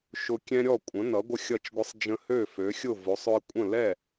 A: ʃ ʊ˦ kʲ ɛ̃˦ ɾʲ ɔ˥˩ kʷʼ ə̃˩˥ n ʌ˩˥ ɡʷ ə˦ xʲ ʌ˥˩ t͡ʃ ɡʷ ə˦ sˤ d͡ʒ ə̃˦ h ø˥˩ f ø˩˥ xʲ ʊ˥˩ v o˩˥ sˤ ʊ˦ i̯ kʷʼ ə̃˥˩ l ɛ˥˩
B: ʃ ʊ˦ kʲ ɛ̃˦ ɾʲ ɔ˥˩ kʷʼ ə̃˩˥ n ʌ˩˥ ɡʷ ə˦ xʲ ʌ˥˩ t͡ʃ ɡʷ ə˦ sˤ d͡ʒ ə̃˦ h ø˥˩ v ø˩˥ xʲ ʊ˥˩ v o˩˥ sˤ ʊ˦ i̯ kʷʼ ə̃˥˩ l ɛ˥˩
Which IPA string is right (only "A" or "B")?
A